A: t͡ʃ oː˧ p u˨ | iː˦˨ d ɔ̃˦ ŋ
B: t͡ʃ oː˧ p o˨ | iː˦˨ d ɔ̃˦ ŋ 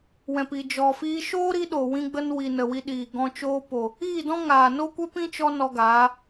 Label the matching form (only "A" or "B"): B